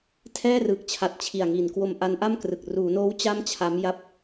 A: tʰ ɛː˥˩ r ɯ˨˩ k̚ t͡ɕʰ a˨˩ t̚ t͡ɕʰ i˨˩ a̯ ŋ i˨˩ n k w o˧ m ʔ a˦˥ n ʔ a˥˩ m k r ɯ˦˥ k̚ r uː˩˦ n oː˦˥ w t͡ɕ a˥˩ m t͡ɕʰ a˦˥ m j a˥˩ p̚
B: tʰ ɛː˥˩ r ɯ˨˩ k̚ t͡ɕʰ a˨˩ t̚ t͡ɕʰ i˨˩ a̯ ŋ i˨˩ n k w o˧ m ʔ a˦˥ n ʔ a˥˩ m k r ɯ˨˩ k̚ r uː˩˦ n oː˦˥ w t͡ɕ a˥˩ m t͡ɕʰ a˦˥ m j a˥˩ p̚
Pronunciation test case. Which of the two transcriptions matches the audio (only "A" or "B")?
B